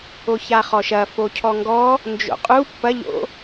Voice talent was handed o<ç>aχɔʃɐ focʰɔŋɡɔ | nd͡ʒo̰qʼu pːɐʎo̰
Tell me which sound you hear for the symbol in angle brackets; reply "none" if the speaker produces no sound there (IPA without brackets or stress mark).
ç